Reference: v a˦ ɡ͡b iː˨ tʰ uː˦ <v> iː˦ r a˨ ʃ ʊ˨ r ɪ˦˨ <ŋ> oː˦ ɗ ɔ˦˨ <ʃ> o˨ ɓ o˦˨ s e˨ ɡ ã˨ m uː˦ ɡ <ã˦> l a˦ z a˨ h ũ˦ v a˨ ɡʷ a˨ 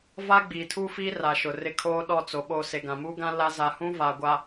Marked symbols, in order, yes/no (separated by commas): no, no, no, yes